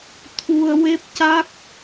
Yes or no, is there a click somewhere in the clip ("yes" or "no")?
no